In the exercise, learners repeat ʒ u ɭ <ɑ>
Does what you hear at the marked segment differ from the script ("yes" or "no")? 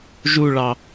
no